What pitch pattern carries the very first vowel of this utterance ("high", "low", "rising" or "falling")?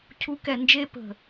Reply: rising